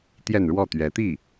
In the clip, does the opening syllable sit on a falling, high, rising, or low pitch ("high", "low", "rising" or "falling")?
falling